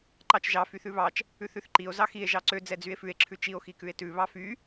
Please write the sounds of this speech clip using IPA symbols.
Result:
ǃɑt͡ʃʒɑ fyθʉβɑt͡ʃ | ʉθʉθǃio̯ zɑxie̯ ʒɑǀø d͡zɛd͡zye̯fʉe̯ ǁʰʉt͡ʃio̯ xikʉe̯tʉ βɑfy

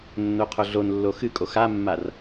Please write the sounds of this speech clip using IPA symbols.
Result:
nːoqʰoɮonlːo xɨkʼox amːar

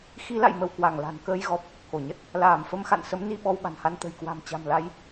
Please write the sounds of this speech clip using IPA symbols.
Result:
xi˨˦la̰˧˨jmə˧˩w kwa˧˩ŋla̤˨˩nkəː˧jɣɔ˨˩p̚ | ko˧˩ɲə˦˥t̚ | laː˧˩mfə˧mxa̰˧˨nsə˨˦m ni˧ ɓɔ˧wɓa̤˨˩nha˧n t̪ə̤˨˩jkwa̤˨˩m t͡ɕa̤˨˩mla˨˦j

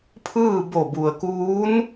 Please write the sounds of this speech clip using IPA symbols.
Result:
pʰɯː˥˨ bo˧˩bu˩ə̯kuː˧˥n

